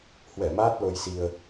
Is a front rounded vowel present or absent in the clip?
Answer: absent